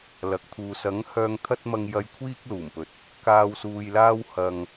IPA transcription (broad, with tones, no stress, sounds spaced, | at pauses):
l ɐ˨ k̚ t̪ʰ uː˨ s ɐ˨˥ ŋ h œː˨ ŋ t̪ʰ ɐ˧ t̚ m ɐ˨ ŋ j ɐ˨ j kʷʰ iː˧ k̚ l uː˨˩ m p ɵ˨ t̚ | k aː˨ w s uː˨ j l aː˧ w h ɐ˧ ŋ